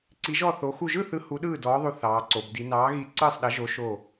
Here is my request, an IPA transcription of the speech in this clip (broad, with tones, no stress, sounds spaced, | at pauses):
ǀ i˨˥ ʒ ɔ˥˩ θ o˨˥ x u˧˩ ʒ ɯ˥˩ θ ɯ˨˥ h u˨˥ ɗ ɯː˥˩ d ɔː˨˥ ðˤ u˧˩ θ ɑː˩˧ ǀ o˩˧ b d i˩˧ n ɑː˨˥ ɣ i˧˩ ǀ ɯː˥˩ sˤ ɗ ɐ˨˥ ʒ o˨˥ ʃ o˧˩